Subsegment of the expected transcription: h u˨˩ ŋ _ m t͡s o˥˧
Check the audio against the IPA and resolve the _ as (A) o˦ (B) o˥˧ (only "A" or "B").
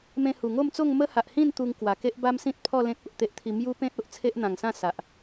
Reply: B